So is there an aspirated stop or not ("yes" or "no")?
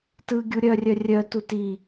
no